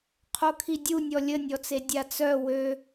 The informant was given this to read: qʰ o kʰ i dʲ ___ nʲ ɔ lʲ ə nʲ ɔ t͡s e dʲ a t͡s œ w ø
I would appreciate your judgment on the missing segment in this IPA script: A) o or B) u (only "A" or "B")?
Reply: B